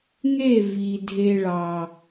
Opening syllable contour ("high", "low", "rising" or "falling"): falling